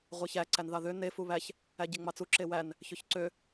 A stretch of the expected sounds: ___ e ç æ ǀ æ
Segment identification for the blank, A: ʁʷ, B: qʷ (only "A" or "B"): A